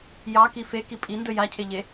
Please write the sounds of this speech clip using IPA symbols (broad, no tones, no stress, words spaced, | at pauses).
jɑki feki pʼindɵ jacʰeʎe